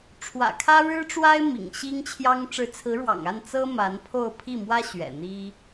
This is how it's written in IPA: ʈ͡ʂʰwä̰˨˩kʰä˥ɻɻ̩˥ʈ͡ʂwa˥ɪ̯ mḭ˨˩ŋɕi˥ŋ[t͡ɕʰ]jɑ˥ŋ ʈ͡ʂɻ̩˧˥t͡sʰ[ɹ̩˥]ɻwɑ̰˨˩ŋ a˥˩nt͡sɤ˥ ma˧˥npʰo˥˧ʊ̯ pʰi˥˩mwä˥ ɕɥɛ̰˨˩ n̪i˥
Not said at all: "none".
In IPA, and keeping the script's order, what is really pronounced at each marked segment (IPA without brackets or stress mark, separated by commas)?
t͡ɕʰ, ɹ̩˧˥